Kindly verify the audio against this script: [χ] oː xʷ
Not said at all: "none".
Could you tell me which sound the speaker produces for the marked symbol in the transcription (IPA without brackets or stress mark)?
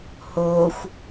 h